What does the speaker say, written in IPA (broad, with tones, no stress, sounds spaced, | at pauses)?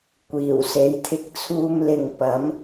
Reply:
kʷ iː˨˩ w s e˨˧ j t̪ʰ ɪ˧ k̚ t͡sʰ uː˧ m l ɪ˨ ŋ p ɐ˨˥ m